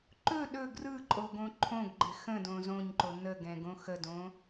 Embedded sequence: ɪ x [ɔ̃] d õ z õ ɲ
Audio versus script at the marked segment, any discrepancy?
yes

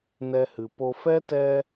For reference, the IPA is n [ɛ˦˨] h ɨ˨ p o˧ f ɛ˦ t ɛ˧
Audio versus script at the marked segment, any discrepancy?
yes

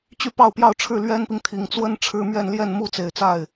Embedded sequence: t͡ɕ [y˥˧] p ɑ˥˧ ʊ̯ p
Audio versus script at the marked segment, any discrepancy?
no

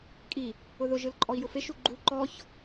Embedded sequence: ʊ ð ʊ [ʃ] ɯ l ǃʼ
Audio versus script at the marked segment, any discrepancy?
yes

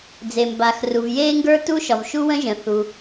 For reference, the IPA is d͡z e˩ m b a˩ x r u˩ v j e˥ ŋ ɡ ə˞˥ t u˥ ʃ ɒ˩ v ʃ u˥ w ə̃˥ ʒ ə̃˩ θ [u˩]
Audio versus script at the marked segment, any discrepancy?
no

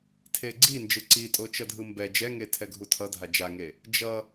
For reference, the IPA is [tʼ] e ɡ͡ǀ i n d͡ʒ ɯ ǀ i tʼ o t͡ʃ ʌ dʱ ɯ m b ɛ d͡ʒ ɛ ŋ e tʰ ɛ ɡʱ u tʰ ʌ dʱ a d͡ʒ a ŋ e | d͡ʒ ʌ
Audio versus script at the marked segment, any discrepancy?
yes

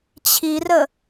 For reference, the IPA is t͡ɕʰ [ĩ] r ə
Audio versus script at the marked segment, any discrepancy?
yes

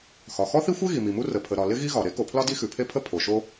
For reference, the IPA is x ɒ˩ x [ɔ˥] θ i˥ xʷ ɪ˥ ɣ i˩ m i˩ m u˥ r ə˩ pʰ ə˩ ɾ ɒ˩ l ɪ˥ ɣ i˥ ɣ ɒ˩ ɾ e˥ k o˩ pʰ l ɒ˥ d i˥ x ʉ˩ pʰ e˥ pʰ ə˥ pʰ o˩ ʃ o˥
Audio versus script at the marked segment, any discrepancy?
no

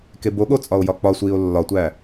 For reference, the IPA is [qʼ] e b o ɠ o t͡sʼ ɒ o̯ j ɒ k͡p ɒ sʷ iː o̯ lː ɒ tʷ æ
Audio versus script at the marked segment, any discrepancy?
yes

